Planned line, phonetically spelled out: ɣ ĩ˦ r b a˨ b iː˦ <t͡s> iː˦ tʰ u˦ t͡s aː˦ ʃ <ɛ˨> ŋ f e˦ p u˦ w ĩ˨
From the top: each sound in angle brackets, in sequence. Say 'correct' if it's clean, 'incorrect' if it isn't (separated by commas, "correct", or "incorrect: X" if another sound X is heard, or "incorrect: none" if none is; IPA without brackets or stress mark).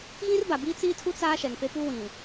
correct, correct